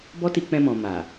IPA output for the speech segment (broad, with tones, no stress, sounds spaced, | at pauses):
b ɔ˦ t i˧ k͡p ɛ̃˧ m ɔ̃˨ m a˨